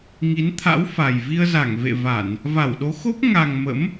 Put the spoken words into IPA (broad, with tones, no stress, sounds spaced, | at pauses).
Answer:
ŋ i˨˦ n t̪ʰ a̰˧˥ w f a˨˩ j v i˧ ə̯ z a˧˩ ŋ v ḛ˧˨ v a˧˩˨ n | v a˧˩ w ɗ o˨˦ x o˦˥ p̚ ŋ a˨˩ ŋ m ə̰˧˥ m